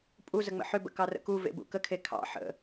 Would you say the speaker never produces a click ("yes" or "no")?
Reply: yes